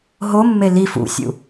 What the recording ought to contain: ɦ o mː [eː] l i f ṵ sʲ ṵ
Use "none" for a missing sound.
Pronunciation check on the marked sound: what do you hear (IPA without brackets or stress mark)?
e